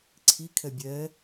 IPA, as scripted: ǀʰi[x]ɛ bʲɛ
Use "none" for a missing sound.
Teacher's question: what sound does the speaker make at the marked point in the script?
kʰ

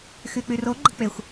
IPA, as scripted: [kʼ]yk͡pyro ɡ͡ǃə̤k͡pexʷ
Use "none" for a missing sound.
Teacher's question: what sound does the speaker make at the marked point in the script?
x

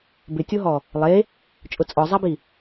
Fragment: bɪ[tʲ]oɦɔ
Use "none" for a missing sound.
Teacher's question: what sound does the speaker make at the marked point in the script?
tʲ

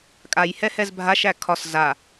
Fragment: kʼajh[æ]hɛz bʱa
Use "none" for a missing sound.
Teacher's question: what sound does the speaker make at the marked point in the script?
ɛ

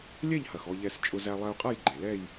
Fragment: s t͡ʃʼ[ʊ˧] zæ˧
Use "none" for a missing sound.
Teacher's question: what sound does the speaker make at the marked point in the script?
ʊ˧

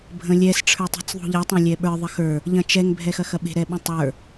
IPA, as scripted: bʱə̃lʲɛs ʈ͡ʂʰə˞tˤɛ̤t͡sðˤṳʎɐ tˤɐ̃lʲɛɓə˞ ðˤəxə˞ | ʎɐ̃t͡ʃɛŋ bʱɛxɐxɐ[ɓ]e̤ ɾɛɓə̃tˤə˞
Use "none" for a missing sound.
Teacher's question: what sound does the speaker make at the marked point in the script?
ɓ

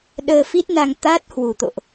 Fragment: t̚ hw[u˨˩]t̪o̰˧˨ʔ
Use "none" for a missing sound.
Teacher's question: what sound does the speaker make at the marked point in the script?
u˨˩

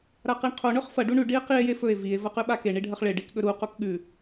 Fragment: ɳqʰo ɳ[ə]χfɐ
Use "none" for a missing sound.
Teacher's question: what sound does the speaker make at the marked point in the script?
ɵ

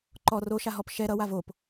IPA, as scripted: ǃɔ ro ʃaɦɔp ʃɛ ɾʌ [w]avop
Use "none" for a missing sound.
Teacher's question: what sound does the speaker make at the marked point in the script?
w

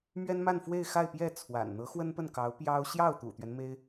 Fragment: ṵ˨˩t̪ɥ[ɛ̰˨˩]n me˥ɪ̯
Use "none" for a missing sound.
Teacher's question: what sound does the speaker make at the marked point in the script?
ɛ˦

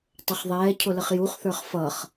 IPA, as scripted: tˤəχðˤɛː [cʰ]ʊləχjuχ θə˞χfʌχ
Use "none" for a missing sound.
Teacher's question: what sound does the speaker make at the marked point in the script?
cʰ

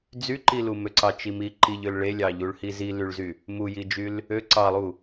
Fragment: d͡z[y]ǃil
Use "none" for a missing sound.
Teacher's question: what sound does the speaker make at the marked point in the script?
y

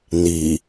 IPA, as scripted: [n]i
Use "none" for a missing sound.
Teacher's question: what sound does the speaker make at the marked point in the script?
n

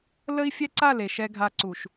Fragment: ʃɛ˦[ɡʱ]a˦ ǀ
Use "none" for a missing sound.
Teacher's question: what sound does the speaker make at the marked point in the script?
ɡʱ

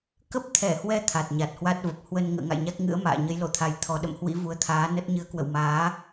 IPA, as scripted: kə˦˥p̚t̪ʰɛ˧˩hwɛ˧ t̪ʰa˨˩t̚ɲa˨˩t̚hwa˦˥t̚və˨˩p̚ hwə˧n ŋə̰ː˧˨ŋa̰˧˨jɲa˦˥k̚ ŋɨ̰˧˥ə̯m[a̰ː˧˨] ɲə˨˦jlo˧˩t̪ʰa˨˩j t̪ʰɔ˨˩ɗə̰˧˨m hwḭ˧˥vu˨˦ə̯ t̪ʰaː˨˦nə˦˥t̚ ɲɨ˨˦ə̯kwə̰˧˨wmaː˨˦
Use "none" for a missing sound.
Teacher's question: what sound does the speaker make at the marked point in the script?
a̰ː˧˨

